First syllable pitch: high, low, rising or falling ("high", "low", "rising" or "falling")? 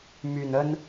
low